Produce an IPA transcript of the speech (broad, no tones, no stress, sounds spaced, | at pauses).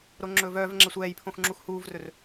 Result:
ɾ o ŋ͡ǁ ɵː v œː v ŋ͡ǁ ɛ sʷ ɛː j pʰ õ x ŋ͡ǁ u x h uː v r ɵ r